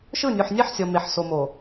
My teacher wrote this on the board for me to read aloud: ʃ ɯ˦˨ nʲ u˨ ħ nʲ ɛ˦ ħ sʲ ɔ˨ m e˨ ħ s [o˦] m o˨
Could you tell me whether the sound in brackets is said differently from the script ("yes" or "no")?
yes